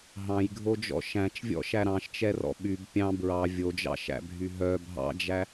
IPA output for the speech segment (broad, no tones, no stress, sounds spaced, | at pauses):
ɦ ɑ̃ j ɡʱ o d͡ʒ ɔ̰ ʃ æ̃ t͡ʃ vʲ ɔ̰ ʃ æ ɾ ɑ̃ ʃ t͡ʃ ɛ r ɔ̰ ɓ y b pʲ ɑ̃ b ɹ ɑ vʲ o d͡ʒ ɑ̰ ʃ æ̰ bʱ y ɦ œ bʱ ɑ̰ d͡ʒ æ